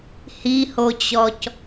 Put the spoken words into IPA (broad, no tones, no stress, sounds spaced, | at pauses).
h i h o t͡ɕ ɔ c